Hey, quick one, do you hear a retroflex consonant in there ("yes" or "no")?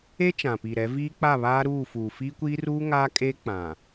no